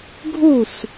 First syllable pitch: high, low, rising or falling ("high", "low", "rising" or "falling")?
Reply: falling